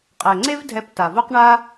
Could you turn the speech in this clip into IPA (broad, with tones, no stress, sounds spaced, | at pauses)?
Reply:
qʼ ɛ˨ ŋ͡ǀ e˦ v dʱ ɛ˧ p t a˨ v o˦ q ɳ a˦